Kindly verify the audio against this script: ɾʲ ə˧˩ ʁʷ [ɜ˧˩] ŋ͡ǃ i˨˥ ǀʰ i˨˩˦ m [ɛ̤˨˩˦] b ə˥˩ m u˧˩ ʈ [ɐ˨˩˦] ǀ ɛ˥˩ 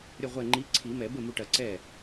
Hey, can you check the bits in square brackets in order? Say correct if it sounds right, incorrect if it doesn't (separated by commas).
incorrect, incorrect, correct